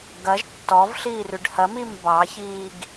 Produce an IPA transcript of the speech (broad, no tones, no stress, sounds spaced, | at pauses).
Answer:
ɡ ɐ ʒ tː ɔ v ɬ iː r ʉ ɖ h ɐ m i m b ɑ ç iː ɡ